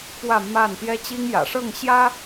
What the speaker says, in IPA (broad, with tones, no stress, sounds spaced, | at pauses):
p w ä˥˨ m a˥˨ n t̪ j ɛ˦ t͡ɕ i˦ ŋ j ä̰˨˩ ʂ ɤ˥˨ ŋ ɕ j ä˦